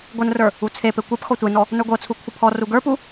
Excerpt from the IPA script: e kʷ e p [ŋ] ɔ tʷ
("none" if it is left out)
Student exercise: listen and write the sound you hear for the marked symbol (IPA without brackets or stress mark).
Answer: x